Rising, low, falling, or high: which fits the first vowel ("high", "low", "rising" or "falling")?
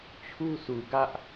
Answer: high